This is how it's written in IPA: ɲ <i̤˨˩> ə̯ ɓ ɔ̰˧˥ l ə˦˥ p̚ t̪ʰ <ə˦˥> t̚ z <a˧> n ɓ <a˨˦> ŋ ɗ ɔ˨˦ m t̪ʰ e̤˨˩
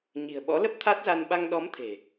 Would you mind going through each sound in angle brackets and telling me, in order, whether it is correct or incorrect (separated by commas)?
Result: correct, incorrect, correct, incorrect